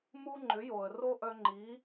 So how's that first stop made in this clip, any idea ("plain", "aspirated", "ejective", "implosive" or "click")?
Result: click